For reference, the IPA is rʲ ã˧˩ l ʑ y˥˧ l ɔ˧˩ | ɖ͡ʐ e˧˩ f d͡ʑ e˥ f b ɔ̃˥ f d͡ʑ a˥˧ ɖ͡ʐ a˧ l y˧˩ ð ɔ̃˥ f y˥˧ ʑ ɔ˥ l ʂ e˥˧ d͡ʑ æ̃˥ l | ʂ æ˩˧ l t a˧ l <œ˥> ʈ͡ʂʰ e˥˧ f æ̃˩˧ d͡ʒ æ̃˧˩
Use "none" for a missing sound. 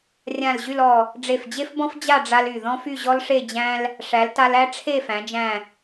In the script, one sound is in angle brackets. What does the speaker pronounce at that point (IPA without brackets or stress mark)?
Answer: æ˥